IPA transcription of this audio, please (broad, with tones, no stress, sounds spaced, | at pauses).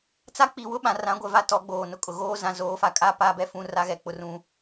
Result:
t͡s a˦ k͡p i˨ w ʊ˦ ɓ ã˨ r ã˨˦ ɡʷ ɛ˨ v a˦ t ɔ˨˦ ɡ͡b oː˨ n ʊ˦ kʼ ʊ˨ ɣ oː˦ z ã˨ z oː˨˦ f a˨ kʼ a˦ p a˦ b ɛ˦ f ũ˦ r a˦ ɣ ɛ˨ k͡p ʊ˦ r ũ˦